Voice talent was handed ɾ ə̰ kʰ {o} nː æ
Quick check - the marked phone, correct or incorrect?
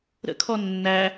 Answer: incorrect: ɔ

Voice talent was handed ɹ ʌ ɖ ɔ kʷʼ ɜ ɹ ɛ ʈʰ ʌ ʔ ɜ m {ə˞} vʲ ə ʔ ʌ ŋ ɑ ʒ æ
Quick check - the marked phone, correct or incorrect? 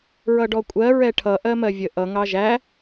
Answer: incorrect: ɜ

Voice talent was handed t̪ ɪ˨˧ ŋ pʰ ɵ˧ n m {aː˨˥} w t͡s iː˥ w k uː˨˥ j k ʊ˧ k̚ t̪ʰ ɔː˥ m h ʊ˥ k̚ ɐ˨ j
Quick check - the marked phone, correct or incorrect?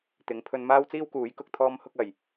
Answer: incorrect: aː˥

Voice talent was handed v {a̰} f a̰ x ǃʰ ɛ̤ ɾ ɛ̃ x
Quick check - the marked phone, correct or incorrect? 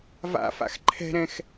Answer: correct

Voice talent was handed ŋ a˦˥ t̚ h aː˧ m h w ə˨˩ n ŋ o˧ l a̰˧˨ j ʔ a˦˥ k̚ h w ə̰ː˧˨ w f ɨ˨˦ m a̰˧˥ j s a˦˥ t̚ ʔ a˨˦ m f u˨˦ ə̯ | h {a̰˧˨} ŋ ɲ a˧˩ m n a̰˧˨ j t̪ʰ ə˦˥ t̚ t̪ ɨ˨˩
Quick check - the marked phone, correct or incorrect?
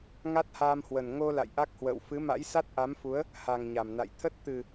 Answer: incorrect: a˨˩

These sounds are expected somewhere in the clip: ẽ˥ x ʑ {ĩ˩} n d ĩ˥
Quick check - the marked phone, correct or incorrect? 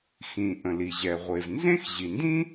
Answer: incorrect: i˩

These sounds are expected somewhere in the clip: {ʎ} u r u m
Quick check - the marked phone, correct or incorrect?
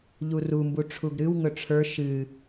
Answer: correct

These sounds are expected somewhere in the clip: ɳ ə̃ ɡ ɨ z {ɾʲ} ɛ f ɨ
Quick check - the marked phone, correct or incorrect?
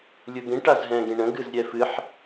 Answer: correct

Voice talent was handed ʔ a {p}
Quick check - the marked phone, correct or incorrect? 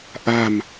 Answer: incorrect: m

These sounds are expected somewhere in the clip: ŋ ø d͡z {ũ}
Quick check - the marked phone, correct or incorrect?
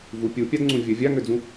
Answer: correct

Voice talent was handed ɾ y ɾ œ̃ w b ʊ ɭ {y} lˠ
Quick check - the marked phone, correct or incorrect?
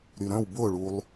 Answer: incorrect: u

